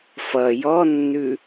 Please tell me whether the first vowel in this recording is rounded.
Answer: no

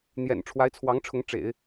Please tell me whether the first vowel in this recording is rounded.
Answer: no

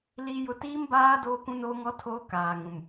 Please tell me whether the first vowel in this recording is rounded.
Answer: no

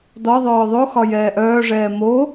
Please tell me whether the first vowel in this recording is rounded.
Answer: yes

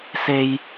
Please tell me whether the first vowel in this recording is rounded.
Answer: no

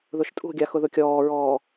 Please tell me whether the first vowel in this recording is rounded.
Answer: yes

